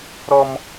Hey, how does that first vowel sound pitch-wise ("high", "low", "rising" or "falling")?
high